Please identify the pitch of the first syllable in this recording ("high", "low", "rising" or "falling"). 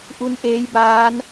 rising